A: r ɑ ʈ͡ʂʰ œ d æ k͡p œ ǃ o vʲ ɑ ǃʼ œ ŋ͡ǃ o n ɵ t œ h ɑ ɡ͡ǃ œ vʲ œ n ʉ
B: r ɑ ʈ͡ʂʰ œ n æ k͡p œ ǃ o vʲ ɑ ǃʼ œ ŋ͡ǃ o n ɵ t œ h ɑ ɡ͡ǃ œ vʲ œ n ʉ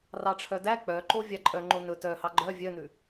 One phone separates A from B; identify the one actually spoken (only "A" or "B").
A